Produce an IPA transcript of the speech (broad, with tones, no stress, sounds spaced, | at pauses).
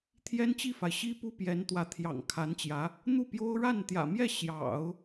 t̪ʰ j ɛ˥ n t͡ɕ i˥˩ f a˩ ɪ̯ ɕ i˥ p u˥ p j ɛ˧˥ n t̪ w ä˧˥ t̪ʰ j ɑ̰˨˩ ŋ kʰ a˧˥ n t͡ɕ j ä˧˥ | n̪ u˥˩ p j o˥ ʊ̯ ɻ a˥˩ n t̪ j ä̰˨˩ m j ɛ˥˩ ɕ j ɑ̰˨˩˦ ʊ̯